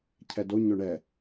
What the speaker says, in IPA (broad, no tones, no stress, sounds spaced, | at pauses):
cʰ ɛ d o ɲ ɵ ɳ ɛ